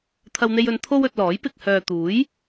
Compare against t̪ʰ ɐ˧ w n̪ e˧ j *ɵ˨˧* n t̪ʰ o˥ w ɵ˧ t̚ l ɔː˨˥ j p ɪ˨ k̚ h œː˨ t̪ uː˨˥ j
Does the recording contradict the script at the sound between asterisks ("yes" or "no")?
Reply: no